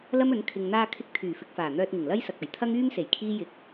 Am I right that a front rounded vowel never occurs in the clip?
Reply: no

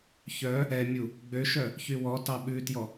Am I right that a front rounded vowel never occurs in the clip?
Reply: no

